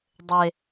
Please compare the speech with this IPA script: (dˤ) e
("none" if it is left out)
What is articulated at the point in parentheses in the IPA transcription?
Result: dˤ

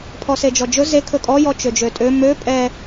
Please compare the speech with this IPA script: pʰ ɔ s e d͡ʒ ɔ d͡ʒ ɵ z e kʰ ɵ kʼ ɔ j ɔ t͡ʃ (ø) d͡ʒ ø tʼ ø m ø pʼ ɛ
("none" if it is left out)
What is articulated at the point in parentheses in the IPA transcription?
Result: ø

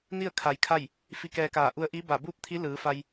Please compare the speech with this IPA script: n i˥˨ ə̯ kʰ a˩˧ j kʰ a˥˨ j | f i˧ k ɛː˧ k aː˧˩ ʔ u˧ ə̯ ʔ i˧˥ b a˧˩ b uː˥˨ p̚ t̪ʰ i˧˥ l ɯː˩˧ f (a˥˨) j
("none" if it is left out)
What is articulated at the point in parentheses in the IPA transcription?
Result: a˧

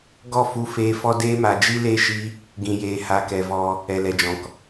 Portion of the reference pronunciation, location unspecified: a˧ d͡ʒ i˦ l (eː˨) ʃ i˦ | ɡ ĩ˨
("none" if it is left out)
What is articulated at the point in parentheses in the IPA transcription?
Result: eː˦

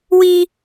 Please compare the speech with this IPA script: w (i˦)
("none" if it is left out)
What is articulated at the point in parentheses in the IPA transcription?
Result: i˦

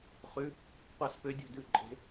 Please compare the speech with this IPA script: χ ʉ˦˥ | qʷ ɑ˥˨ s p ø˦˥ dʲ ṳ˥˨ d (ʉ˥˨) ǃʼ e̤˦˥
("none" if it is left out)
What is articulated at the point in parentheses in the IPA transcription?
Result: ʉ˥˨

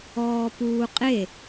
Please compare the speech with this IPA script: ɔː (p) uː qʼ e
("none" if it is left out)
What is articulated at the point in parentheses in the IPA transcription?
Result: p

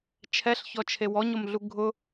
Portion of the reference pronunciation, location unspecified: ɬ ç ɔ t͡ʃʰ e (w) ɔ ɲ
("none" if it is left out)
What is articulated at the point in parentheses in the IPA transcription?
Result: w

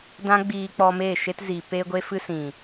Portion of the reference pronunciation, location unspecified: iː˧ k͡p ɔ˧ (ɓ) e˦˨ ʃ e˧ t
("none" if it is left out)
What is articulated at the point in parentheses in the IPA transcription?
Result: m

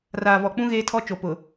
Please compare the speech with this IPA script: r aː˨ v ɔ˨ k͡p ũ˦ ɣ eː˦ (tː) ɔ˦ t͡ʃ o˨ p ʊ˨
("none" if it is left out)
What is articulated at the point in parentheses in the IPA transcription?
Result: tʰ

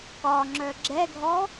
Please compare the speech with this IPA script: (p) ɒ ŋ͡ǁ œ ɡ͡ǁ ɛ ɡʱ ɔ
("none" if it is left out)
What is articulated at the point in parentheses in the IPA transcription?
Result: k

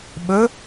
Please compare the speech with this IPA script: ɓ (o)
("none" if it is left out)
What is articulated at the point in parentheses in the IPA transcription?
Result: ɵ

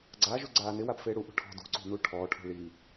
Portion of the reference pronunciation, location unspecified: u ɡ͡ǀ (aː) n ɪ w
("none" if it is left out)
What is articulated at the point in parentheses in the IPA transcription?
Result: aː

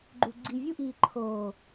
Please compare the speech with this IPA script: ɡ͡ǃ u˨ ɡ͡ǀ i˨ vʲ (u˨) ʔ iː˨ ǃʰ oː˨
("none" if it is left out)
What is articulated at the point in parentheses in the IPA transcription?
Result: u˦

